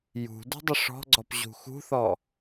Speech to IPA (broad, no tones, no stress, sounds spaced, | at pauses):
j ṳ d ṳ dˤ ə ʂ ɔ̤ ɡ͡ǀ ɔ p ʑ ṳ x ṳ θ ɔ